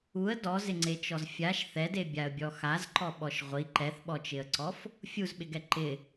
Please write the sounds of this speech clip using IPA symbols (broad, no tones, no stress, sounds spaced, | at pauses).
u ə̯ d ɔ z ɪ ŋ͡ǀ e t͡ʃ ɔ z fʲ a ʃ θ ɛ d e bʲ a ə̯ bʲ ɔ x a z ǃ ɔ ɓ ɔ ʃ ʁʷ i ǃ ɛ θ ɓ ɔ t͡ʃ ɪ ə̯ ǀ ɔ f | fʲ u z ɓ ɪ ɡ ɛ ǃ ɪ